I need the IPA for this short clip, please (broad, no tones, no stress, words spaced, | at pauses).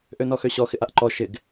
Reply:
ʔønɔxøɕɔ xɪʔaʔǃɔ ʃɪɡ